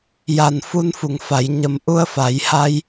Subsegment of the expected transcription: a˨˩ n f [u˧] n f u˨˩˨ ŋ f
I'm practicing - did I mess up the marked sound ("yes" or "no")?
no